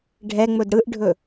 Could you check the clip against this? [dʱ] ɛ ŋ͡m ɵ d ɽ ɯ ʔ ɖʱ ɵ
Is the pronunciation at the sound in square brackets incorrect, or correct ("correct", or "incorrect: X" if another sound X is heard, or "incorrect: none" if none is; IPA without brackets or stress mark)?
incorrect: ɖʱ